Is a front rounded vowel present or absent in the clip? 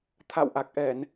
absent